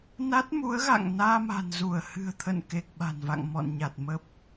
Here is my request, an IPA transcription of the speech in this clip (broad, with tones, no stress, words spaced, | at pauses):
na˦˥t̚mu˨˦ə̯ɣa̰˧˨ŋ naː˧ma̤˨˩nzu˧˩ə̯ hɨ̤˨˩ə̯t̪ʰə̰˧˨n ke˨˩k̚ɓa̤˨˩nva̰˧˨ŋ mɔ̰˧˨nɲa˨˩t̚ mə˦˥p̚